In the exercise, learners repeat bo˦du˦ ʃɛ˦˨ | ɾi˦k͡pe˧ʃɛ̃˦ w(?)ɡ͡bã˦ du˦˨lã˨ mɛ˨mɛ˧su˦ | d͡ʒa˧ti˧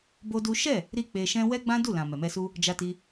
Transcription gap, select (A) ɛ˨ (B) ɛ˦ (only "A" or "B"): B